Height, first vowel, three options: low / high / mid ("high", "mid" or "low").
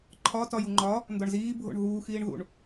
low